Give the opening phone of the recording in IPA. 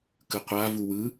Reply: k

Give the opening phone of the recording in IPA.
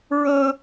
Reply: ɹ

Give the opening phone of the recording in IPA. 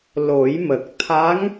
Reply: l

